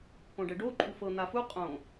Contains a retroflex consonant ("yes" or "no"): yes